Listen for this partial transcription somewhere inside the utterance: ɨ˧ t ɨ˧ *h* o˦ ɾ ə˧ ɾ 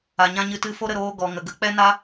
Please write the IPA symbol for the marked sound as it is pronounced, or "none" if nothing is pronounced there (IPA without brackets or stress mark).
f